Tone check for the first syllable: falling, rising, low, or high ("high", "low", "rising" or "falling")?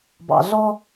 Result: low